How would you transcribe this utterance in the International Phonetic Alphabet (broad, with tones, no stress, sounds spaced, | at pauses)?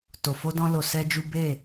t o˨ f o˧ d ɔ̃˧ l o˧ s ɛ˦ d͡ʒ u˦ b e˦˨